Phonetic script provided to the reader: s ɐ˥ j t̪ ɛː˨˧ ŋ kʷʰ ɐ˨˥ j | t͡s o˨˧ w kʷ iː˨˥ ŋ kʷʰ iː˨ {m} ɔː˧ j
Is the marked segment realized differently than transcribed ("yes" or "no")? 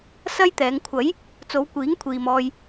no